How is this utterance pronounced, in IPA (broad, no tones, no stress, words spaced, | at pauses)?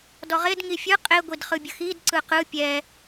dɔʁed ŋifʲɯ qʼe ɡʷidχɯbʲəxid ǀɯqɯ pʲɛ